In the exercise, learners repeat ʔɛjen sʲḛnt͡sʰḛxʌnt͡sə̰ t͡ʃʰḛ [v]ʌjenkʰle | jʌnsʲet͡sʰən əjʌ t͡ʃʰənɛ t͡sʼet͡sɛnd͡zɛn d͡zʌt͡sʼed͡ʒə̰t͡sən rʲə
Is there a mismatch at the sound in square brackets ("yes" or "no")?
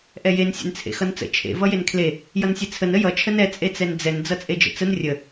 no